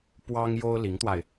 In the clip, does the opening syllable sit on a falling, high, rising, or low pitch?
high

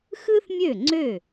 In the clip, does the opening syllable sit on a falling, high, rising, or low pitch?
high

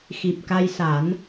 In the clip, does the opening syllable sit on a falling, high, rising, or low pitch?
low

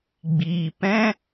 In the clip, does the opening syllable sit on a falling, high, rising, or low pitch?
low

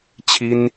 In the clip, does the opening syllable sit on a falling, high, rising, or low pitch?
high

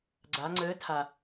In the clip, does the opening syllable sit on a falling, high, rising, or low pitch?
rising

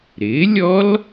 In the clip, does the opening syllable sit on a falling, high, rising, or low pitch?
rising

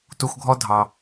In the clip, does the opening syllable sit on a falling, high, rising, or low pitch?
low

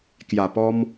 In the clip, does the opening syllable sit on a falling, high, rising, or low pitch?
low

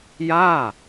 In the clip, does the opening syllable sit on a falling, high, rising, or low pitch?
falling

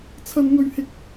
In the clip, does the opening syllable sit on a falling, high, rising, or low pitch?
high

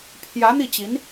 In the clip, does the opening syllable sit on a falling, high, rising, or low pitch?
rising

